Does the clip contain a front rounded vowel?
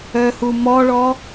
yes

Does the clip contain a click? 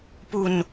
no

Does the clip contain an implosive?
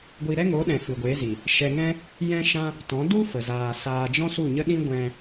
yes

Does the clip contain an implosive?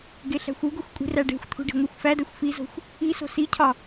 no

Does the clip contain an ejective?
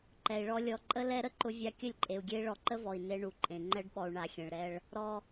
yes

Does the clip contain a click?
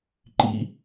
yes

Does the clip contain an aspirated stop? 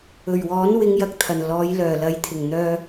yes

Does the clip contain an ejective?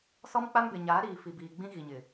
no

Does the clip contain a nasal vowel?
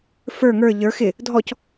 no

